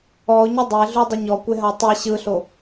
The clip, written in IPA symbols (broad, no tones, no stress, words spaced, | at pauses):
ɔʊ̯ɲu dˤeɮudˤɯ ɲɔkʷeɦa tˤi ɕɯɬo